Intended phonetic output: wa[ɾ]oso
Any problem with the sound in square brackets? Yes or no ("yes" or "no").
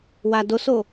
yes